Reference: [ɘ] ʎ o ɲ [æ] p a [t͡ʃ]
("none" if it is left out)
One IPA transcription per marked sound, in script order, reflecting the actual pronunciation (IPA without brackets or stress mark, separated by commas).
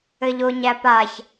ɘ, æ, ç